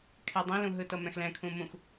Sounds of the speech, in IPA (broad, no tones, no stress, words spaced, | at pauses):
kʰɛdˤĩlũ ɦɯtɤmɛ̃xlɛ̃ kʰũmũx